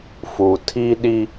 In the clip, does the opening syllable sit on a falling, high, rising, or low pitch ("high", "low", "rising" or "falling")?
low